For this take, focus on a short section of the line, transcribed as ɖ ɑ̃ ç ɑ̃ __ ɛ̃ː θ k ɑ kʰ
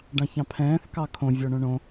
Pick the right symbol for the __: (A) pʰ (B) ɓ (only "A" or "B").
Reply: A